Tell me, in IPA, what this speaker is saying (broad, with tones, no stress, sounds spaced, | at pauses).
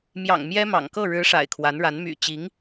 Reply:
m j ɑ̰˨˩ ŋ m j ɛ˥ m ɑ̰˨˩ ŋ k ɤ˥˩ ɻ ɻ̩˧˥ ʂ a̰˨˩ ɪ̯ kʰ w a˧˥ n ɻ a˧˥ n m y̰˨˩ t͡ɕ i˧˥ ŋ